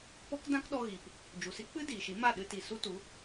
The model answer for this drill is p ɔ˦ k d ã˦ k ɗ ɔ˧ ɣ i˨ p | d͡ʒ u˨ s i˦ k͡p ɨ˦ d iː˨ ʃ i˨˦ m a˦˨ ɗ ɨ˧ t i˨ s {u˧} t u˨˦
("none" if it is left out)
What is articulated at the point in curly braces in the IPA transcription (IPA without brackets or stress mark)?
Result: u˦